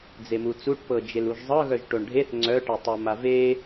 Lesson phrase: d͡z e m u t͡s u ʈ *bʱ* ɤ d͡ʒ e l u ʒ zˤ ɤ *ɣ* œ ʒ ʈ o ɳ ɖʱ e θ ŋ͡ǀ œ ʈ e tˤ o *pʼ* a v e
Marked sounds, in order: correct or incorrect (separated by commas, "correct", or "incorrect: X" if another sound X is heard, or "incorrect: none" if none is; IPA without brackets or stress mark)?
incorrect: p, correct, incorrect: m